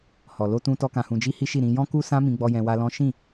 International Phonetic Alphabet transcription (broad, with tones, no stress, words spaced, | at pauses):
hɔ˨ lo˧tũ˧tɔ˧ kã˨hũ˨d͡ʒi˧ hi˦ʃi˦˨ ɾĩ˧ jɔ̃˦ku˦sã˦ mĩ˧ɡ͡bɔ˧ jɛ̃˧wa˦ lɔ̃˦ ʃĩ˦˨